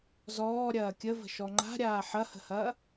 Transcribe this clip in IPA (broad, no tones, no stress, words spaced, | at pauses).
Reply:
zɔːɾʲɐː kʲəvə̤ ʃɔŋ͡ǃa̤ɾʲaː ħɐhə̤hɐː